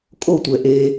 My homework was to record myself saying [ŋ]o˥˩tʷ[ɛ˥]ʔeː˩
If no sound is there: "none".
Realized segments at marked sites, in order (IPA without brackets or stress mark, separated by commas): kʼ, ɛ˩